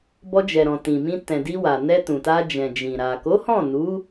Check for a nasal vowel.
present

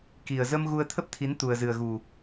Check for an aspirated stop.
present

